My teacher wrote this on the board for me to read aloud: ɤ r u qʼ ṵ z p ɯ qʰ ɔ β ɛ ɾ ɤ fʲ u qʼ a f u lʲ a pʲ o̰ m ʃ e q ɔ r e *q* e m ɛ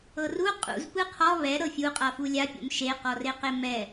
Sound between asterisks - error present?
no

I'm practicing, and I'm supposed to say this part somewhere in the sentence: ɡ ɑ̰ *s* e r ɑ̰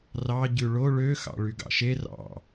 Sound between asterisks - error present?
yes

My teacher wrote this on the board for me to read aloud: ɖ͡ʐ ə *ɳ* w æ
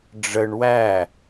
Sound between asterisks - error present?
no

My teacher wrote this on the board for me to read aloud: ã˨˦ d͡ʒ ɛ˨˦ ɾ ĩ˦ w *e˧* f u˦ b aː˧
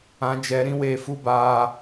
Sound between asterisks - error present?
no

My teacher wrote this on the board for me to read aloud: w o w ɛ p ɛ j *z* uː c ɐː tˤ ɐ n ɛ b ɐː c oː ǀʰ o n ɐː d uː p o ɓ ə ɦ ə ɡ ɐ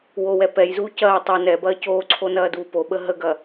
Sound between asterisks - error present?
no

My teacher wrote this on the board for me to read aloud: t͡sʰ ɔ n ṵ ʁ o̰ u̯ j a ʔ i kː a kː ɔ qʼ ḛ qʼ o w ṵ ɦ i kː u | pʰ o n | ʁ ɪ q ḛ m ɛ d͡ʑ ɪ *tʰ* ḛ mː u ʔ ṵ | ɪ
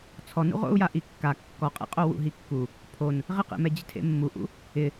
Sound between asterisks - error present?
no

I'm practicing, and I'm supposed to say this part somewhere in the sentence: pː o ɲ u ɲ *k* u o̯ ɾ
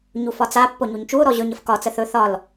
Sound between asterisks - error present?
yes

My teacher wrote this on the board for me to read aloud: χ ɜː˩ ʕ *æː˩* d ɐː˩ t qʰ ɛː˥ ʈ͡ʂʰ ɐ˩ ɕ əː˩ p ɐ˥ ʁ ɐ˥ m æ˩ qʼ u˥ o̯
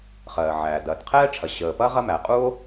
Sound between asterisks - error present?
no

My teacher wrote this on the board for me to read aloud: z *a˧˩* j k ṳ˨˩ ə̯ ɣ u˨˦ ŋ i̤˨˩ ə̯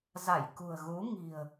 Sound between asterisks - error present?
no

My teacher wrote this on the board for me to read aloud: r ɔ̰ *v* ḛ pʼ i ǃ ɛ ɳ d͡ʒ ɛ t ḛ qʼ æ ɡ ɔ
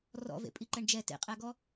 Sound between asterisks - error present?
no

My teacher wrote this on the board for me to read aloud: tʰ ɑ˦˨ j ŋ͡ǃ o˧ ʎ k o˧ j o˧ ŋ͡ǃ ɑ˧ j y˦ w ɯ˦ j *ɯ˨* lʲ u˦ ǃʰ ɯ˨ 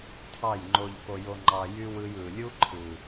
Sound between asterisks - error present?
no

